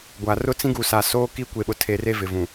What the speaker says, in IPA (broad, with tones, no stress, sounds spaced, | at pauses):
ɡʷ a˨ r ʊ˦ t͡s ĩ˦ ɡ u˨ s a˨ s oː˦ k i˦ kʷ e˨ ɓ ʊ˨ tʰ e˨ r e˦ v ɪ˨ v ũ˨